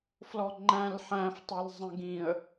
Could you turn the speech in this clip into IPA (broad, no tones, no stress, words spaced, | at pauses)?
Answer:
flɔŋ͡ǃæ̃l ħæ̃ftˤɛl zˤə̃ɡĩə̯